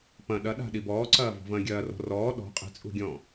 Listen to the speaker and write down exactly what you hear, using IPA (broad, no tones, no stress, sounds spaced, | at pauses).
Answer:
p ɐ̃ ɗ ɐ ɗ a̤ ɗ i b ɔː ǀ ɐː v ɔ̤ v ɐ̃ː ɡʲ ɐː r ɔ̤ r ɔː ɗ ɔ̤ qʼ i̤ t͡sʼ ṳ ɡʲ ɔ̃